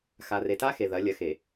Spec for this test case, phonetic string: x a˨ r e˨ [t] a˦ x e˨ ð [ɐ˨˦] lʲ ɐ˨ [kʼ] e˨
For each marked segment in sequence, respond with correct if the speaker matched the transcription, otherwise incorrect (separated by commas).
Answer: correct, correct, incorrect